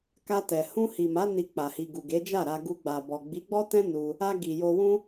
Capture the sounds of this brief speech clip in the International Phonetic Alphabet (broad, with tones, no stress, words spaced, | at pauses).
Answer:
ka˧tɛ˨ hũ˧hi˨ma˨˦ ni˧ k͡pa˨hi˨ ɡu˨ɡe˨˦d͡ʒa˦˨ɾa˧ ɡu˧ɡ͡ba˨bɔ˨ ɡ͡bi˨˦ɡ͡bɔ˦tɛ̃˦ nu˧ | a˧ ɡi˨ jo˧wũ˦